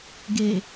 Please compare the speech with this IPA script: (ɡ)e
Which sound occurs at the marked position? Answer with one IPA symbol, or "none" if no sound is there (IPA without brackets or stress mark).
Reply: ɡ